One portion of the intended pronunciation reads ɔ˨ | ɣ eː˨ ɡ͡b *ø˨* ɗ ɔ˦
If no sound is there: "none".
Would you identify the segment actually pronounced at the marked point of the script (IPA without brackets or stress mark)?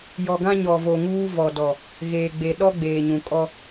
e˨